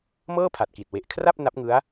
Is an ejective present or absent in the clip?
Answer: absent